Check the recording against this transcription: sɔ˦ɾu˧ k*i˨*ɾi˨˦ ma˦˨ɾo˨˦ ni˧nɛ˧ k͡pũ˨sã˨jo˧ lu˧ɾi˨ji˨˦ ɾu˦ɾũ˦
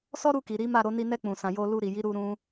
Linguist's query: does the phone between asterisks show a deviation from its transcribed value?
no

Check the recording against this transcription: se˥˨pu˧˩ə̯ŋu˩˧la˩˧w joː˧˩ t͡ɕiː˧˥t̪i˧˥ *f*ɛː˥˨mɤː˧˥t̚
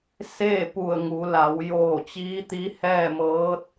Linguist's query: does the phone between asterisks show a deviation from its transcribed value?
yes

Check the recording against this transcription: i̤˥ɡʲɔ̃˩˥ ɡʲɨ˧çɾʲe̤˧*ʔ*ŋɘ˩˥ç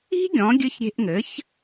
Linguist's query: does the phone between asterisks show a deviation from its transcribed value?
no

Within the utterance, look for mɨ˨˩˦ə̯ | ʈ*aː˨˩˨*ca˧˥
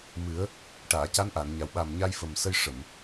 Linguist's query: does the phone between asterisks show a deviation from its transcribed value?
no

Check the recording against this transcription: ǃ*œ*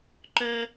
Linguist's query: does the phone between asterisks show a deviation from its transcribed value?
no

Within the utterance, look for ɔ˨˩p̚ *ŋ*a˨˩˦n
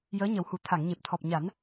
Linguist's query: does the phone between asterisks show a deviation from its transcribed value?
yes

